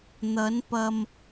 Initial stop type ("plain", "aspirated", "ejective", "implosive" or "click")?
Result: plain